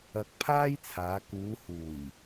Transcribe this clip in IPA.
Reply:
ɐ˧ k̚ pʰ aː˥ j t͡sʰ aː˨˧ k uː˨˧ h uː˨˩ j

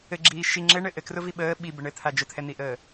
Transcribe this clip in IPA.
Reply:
ɘ ɡ͡ǁ iː ʃ i ŋ͡ǁ ɘ ɳ ɘ ʔ ɘ k r ʊ v i ɓ əː ɓ i b ə ɳ ɘ t̪ʰ a d͡ʒ ʊ t̪ʰ ɛ n̪ i ʔ əː

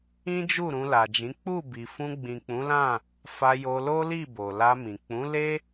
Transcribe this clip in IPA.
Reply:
ĩ˦ d͡ʒ u˦˨ ɾ ũ˧ l a˨ d͡ʒ ĩ˨˦ k͡p u˦˨ b i˨ f ũ˧ ɡ͡b ĩ˨ k͡p ũ˨˦ l ã˦˨ | f a˧ j o˧ l o˦ l i˦˨ b o˨ l a˧ m ĩ˨ k͡p ũ˨˦ l e˦

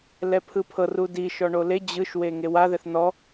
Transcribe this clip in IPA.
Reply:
l ɛ pʰ ɯ pʰ ɤ r u d i ʃ ɔ ɳ o l e d͡ʑ ɯ ʃ w e ŋ e w a ð ɛ θ n ɔ

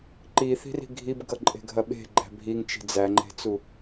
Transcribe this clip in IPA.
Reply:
ǃ i θ i̤ r i̤ ɡʱ i b ɡ ʌ ǃʼ e̤ ɡʱ ɐ ɓ e̤ ɡ͡ǃ æ̤ bʱ i ŋ t͡ʃ i̤ d͡z æ ŋ͡ǃ e̤ t͡s u

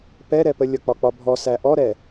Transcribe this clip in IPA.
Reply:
p ɛ ɾ ɛ p ə lʲ ʌ k͡p ɒ k͡p ɒ bʱ ɔ s æ ʔ ɔ ɾ ɛ

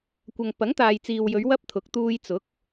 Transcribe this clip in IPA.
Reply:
kʷ ɐ˨ ŋ p ɐ˨˥ ŋ t̪ aː˨ j t͡s iː˨ w j ɵ˨˧ ɥ w ɐ˥ p̚ t̪ʰ ʊ˨˥ k̚ t̪ uː˧ j t͡s ʊ˨˥ k̚

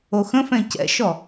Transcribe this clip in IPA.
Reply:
o x ə̃ f ɛ̃ c ɛ̰ ʃ ɔ

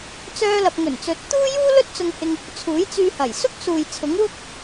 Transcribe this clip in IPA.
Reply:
t͡s œː˧ l ɐ˨ p̚ ŋ ɵ˨˩ n t͡s ɵ˨˥ t̚ t̪ uː˥ j uː˥ l ɵ˥ t̚ t͡s ʊ˧ ŋ h ɪ˧ ŋ | t͡sʰ uː˨˥ j t͡s yː˧ h ɐ˨˩ j s ʊ˥ k̚ s uː˨ j t͡sʰ ʊ˨˥ ŋ w ʊ˥ k̚

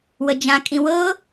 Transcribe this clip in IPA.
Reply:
w ə d͡ʒ ã kʼ ĩ w ɤ

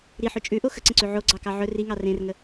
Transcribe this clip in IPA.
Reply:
ɾ i ħ ɵ t͡ʃʼ ʉ ʔ o x ə ǀ ə̃ ǀ ʉ ʕ o ɡ͡ǀ ɑ k ɑ ʕ ɵ r i ŋ ɑ r ẽ r ŋ ə

